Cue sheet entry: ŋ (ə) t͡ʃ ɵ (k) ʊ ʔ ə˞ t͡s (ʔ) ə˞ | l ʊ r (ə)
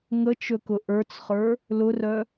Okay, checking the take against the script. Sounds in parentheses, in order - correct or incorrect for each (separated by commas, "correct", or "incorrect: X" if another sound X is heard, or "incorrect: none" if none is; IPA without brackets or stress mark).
correct, correct, incorrect: χ, incorrect: œ